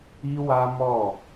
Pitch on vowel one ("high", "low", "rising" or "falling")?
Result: high